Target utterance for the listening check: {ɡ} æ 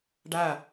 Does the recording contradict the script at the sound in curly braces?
yes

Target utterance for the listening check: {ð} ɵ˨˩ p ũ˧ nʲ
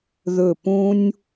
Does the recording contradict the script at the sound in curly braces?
no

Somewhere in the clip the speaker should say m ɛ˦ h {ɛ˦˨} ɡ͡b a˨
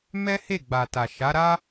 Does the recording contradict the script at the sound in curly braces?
yes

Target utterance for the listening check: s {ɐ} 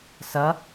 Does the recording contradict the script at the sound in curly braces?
no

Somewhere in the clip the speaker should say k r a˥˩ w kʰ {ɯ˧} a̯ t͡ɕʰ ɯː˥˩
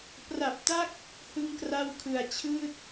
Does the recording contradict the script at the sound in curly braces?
yes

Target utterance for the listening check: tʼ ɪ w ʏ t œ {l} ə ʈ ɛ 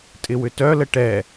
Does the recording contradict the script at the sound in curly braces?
no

